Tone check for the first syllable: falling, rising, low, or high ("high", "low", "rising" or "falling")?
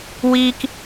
high